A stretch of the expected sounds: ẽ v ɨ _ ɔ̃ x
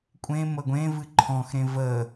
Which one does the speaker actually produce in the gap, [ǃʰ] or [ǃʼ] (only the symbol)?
ǃʰ